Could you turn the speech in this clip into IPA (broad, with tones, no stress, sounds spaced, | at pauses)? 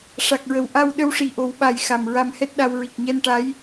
ʂ a˨˩ k̚ ɹ ə˨˩˨ w ʔ a˧ w ɗ ə˧ w ʂ i˨˩ ʔ o˨˩˦ w ɓ a˨˩ j x a˨˩ m ɹ a˧ m h ɛ˦˥ t̚ ɗ a˧ w ɹ i˨˩ k̚ ɲ ɛ˧ n ʈ a˧˥ j